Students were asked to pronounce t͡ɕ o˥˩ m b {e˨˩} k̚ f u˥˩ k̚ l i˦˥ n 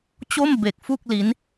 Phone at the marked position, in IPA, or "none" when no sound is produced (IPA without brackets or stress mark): e˨˩